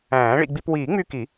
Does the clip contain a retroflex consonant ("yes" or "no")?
yes